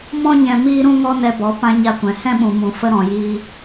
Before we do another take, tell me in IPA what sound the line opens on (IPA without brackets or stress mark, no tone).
m